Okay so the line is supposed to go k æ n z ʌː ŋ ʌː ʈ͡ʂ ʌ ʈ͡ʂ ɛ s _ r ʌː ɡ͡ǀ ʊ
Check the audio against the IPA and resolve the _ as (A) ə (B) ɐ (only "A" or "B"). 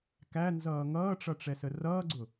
A